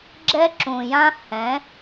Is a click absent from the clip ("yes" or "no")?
no